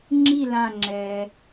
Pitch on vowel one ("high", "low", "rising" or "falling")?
falling